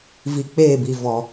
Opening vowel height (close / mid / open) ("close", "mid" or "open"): close